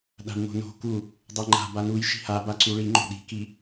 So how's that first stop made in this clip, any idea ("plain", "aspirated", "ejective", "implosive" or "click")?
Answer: implosive